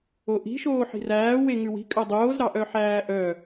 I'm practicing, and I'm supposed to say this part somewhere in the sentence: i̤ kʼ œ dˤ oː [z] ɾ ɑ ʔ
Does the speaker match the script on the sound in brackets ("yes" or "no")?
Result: yes